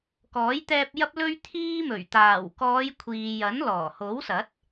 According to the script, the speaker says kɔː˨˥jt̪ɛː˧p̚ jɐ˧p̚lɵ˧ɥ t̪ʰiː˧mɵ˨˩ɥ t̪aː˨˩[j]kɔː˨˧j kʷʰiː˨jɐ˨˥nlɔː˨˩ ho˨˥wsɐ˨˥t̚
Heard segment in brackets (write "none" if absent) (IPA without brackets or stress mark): w